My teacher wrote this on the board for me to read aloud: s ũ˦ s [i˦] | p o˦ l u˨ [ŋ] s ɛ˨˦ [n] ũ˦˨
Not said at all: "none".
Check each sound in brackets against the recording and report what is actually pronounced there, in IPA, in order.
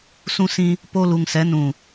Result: ĩ˦, ŋ, n

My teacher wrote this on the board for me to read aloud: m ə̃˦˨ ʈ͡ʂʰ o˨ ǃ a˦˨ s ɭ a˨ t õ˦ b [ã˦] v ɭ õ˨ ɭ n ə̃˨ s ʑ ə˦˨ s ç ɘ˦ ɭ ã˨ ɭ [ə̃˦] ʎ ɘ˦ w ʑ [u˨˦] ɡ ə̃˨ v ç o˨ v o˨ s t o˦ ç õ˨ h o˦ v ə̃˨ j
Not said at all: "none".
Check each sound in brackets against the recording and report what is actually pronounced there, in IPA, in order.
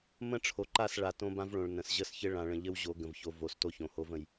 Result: ã˦, ə̃˨, o˨˦

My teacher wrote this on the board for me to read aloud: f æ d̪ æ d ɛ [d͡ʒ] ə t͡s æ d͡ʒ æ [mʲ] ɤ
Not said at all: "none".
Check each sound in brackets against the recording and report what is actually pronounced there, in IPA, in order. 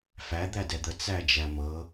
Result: d̪, m

